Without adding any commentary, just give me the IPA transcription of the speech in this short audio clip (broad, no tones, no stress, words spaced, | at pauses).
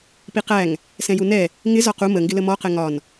piqæŋ | sɛ̃junɛ | ŋɪ zɒqu məŋɡɪlə mɔqɛ ŋɒn